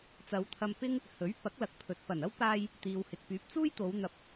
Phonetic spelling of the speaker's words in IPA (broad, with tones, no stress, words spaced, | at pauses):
t͡sɐ˨˧wt̪ʰɐ˧mpɪ˥ŋ | hɵ˨˥ɥ pɐ˨˥k̚lɐ˨k̚pʰɵ˨t̚ pɐ˨˩nɐ˥w paː˧j | t̪iː˨whɪ˨k̚pyː˨˥p̚ t͡suː˥jt̪o˨˧wn̪ɐ˨˥p̚